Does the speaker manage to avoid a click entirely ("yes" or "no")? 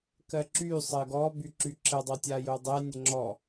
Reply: no